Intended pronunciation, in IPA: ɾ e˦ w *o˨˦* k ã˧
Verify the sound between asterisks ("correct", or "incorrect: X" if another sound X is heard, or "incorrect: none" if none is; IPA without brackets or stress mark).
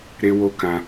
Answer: incorrect: o˦